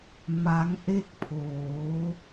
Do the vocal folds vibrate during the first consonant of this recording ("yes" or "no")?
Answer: yes